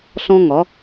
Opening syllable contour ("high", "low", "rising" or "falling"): high